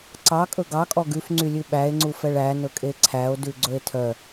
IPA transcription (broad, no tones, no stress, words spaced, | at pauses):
ǀɑkʼɵ ɡɑkʼɔ ɡʉfŋ͡ǀylʲʉ ɓæe̯ŋ͡ǀufɛɭ ænɵkʼe ǀʰæo̯dʉɡ͡ǀɵe̯ tʰœ